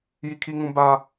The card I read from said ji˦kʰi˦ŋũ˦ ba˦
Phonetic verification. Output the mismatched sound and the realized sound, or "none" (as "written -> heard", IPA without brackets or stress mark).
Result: none